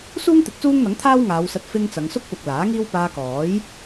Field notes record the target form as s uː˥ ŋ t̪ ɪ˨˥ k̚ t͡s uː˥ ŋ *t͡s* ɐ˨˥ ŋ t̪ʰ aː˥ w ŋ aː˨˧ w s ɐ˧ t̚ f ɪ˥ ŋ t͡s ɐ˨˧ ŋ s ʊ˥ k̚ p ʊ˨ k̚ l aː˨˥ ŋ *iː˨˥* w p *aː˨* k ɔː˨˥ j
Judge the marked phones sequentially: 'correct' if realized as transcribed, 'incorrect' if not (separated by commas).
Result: incorrect, incorrect, incorrect